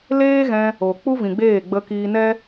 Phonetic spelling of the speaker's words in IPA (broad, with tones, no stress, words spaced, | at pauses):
leː˦ɣɛ̃˧ | o˨ k͡pu˦vĩ˨ɡ͡beː˦˨ ɡ͡bə˧kiː˧nɛ˦